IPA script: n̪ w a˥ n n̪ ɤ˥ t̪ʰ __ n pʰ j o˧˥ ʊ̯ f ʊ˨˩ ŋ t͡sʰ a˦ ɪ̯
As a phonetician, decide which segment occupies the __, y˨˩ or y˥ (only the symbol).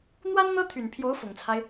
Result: y˨˩